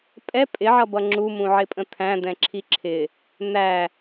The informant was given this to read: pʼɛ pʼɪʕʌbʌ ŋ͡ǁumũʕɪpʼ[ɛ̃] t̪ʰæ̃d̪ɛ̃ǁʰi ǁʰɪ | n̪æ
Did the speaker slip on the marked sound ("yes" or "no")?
yes